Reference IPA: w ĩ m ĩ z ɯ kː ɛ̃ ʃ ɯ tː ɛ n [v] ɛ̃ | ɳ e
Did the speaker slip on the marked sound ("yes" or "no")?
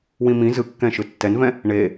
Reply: no